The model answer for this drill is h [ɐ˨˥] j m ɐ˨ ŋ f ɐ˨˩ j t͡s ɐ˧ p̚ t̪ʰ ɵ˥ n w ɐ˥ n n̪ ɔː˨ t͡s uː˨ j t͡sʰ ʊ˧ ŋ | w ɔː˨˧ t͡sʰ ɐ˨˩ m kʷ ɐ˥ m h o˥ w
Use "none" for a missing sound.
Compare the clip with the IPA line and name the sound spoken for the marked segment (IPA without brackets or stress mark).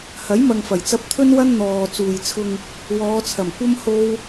ɐ˨˥